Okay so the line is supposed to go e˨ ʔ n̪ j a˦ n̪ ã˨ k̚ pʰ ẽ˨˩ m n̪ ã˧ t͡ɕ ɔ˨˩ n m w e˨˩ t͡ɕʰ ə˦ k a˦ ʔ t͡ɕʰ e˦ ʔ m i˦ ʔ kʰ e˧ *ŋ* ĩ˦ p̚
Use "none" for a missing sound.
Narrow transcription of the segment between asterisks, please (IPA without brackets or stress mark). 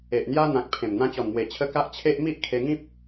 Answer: ŋ